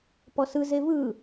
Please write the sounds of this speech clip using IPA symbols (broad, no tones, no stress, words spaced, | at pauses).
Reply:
pɔsɯ zevɯ